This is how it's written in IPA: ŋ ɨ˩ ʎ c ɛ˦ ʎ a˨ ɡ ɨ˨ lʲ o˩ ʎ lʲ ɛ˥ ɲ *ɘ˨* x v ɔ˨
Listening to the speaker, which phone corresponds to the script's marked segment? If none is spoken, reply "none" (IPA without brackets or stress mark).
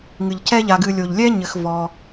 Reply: ɘ˨